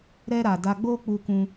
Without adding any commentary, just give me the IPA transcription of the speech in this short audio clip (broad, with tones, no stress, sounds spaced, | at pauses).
ɾ ɛ˦ ɾ a˧ d a˦ ɡ͡b o˦ k͡p u˧ k ũ˧